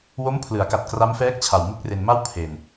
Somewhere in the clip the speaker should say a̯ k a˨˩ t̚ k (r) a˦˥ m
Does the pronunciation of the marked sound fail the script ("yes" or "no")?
no